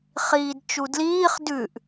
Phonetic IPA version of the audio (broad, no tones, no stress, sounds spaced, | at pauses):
χ iː d t͡ʃ u d l iː χ d ʉ ʔ